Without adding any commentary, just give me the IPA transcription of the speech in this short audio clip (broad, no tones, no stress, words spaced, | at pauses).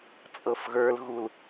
t͡sʼɤfɣə˞lɣul